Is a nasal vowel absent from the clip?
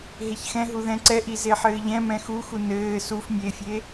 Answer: no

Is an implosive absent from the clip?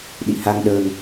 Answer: no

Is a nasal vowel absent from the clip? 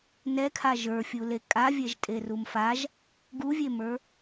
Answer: yes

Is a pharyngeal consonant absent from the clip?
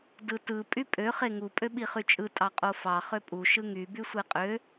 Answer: yes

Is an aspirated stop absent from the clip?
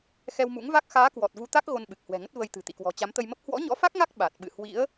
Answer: yes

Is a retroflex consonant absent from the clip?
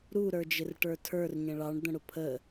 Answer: no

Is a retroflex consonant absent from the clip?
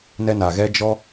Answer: yes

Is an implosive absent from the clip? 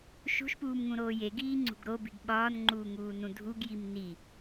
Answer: no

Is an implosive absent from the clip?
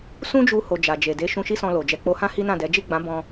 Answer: yes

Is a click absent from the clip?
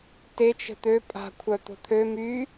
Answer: yes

